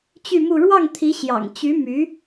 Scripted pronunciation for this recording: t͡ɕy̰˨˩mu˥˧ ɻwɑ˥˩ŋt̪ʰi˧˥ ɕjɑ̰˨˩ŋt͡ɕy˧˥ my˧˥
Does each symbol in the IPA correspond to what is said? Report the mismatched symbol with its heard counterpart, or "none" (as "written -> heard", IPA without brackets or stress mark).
y̰˨˩ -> y˥˧